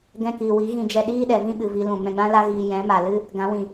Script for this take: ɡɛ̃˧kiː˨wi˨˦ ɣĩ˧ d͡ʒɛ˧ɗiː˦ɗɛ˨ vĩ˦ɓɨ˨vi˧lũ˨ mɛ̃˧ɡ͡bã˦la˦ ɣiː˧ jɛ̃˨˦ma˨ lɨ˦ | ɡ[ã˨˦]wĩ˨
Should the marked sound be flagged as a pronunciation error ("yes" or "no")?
no